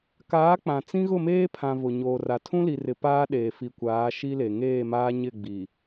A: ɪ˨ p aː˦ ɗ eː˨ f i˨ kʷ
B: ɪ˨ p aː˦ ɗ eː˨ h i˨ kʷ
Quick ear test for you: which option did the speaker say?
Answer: A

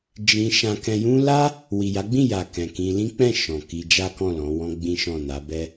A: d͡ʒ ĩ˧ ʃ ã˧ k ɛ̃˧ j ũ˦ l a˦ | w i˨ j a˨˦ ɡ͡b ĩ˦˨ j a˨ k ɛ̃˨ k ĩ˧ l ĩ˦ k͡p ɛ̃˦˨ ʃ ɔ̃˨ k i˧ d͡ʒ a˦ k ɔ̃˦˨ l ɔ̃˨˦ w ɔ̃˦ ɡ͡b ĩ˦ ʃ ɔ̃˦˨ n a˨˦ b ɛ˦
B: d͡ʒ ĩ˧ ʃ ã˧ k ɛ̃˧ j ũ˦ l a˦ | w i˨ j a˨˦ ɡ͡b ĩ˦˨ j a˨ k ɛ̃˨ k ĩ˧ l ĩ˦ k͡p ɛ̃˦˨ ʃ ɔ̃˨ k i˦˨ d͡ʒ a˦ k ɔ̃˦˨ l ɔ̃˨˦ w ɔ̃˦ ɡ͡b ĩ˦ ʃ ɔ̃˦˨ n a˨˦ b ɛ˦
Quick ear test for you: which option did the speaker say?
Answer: A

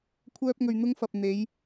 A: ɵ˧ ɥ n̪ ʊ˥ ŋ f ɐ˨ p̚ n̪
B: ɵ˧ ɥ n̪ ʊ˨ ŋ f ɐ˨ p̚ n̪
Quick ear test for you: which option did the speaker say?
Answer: A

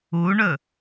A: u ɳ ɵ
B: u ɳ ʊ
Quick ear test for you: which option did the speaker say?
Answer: A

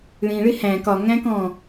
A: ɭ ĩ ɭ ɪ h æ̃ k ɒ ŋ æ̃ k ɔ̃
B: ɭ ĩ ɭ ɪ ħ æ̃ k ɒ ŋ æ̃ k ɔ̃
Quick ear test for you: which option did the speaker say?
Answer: A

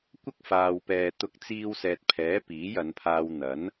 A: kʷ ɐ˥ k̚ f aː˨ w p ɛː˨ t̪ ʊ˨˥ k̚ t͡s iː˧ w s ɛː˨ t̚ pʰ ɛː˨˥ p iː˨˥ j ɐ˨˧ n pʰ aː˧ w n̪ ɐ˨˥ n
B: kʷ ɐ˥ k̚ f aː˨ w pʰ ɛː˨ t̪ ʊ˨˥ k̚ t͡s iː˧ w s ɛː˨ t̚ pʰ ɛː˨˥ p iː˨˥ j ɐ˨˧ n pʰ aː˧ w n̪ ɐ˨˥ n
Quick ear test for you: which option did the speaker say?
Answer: A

